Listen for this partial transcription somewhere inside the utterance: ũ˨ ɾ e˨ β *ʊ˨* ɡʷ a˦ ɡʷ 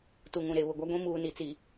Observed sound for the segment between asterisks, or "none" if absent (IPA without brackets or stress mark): ʊ˨